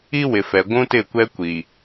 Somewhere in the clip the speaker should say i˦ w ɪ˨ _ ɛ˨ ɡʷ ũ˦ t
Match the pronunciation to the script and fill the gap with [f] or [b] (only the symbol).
f